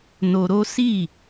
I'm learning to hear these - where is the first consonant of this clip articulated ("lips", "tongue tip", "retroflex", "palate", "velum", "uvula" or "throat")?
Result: tongue tip